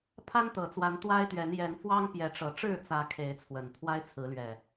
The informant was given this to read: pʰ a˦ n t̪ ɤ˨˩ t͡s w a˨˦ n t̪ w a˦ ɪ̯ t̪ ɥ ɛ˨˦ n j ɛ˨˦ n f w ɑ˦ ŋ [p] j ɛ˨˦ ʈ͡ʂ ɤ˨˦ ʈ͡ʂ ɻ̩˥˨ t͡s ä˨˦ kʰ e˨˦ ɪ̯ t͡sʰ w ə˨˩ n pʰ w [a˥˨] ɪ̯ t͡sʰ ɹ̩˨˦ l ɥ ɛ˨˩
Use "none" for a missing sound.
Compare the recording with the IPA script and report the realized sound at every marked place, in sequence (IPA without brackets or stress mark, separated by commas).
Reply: p, a˦